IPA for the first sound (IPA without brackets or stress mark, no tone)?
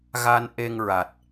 ɣ